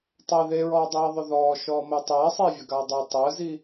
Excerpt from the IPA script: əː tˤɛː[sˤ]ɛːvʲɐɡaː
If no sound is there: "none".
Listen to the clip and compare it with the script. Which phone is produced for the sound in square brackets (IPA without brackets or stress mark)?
sˤ